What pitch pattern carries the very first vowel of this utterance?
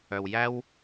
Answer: low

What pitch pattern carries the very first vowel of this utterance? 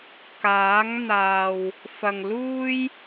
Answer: rising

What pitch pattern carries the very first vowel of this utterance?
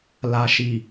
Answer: low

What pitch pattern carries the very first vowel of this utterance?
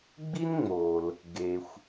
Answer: high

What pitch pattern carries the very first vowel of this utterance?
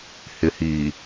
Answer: low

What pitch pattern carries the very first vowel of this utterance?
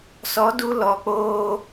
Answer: rising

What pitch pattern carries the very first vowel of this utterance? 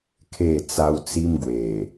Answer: falling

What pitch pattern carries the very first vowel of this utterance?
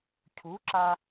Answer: rising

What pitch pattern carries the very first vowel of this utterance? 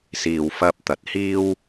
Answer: low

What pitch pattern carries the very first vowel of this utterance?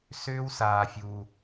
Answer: high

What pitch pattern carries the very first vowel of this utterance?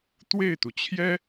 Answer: falling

